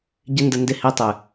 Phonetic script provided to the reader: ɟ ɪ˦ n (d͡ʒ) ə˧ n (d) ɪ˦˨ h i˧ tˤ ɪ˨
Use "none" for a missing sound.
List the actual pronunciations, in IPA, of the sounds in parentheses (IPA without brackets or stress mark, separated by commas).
d, d